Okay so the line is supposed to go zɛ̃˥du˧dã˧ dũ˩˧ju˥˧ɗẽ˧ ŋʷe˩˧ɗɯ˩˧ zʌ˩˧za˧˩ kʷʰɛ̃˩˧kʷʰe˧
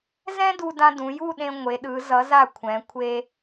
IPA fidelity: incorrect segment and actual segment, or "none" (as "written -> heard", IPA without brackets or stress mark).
none